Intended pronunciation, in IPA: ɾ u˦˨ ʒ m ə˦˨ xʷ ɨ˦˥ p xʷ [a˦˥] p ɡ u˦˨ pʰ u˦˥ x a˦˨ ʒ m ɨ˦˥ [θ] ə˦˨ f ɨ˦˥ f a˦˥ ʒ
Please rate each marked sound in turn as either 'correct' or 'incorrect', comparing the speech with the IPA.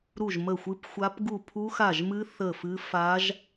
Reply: correct, correct

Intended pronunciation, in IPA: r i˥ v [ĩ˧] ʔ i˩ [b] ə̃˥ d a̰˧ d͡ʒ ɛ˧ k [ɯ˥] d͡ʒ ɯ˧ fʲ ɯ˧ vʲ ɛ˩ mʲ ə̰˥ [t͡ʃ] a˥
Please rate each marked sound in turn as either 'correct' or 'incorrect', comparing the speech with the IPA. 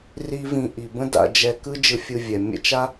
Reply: correct, correct, correct, correct

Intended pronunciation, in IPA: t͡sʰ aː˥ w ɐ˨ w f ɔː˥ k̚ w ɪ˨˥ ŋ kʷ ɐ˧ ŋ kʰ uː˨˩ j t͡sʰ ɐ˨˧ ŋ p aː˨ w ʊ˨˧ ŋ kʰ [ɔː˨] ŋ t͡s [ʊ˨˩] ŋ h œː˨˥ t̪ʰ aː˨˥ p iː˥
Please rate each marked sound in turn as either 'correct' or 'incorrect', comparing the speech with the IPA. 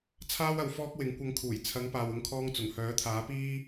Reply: incorrect, correct

